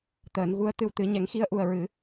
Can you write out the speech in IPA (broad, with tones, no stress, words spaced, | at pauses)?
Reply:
t̪əː˨˩˦nɣu˧˥ə̯ t̪ɨ˧wt̪ɨ˨˩˦ ɲɛ˨˩˦ŋxi˧ə̯ʔu˨˩ə̯ ɹɨ˨˩˦